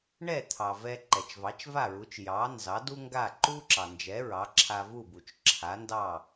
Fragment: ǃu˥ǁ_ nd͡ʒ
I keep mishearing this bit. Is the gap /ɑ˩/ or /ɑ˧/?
ɑ˩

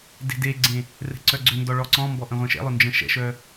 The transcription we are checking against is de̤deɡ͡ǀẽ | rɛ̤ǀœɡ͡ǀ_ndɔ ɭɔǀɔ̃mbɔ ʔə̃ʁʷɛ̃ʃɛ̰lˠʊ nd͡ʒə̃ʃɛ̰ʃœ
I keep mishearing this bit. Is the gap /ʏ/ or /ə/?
ʏ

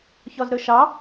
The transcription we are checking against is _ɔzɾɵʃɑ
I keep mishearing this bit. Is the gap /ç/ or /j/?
ç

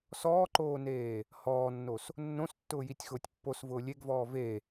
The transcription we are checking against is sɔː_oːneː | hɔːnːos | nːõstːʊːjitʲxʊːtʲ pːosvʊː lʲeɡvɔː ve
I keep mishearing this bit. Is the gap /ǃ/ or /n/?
ǃ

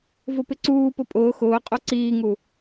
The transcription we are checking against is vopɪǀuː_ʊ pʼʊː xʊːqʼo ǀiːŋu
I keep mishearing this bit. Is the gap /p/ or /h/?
p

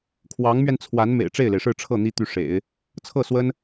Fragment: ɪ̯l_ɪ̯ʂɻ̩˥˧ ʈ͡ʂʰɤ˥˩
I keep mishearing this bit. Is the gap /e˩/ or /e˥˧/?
e˩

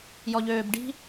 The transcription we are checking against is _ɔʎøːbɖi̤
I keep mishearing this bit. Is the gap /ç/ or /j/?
j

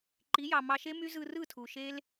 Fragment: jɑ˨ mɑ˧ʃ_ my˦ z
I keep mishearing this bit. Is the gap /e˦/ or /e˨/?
e˦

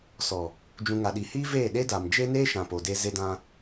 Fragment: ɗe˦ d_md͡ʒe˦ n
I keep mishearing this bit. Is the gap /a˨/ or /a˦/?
a˨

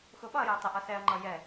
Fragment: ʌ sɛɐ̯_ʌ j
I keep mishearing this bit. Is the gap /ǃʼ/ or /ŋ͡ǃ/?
ŋ͡ǃ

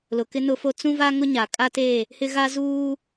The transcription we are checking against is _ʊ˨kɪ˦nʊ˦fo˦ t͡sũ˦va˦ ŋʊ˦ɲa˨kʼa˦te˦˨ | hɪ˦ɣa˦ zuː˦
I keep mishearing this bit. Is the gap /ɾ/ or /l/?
l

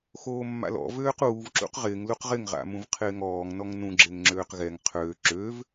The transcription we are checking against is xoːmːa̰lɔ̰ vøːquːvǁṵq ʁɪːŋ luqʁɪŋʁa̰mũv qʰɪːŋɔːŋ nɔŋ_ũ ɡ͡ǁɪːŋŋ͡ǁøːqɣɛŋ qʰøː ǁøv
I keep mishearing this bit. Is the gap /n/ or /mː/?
n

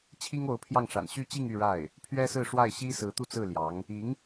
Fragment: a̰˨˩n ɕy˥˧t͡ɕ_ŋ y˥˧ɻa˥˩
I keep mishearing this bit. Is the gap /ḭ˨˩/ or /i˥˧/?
i˥˧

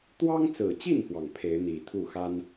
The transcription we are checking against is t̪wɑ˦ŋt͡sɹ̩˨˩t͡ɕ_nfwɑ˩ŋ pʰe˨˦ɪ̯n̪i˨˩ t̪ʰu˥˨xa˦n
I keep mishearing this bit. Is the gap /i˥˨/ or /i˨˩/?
i˥˨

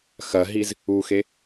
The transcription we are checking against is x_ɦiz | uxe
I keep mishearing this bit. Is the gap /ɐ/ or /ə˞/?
ɐ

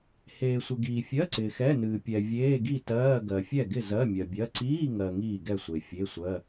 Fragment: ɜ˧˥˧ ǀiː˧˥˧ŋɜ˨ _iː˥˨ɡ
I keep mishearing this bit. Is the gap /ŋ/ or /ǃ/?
ŋ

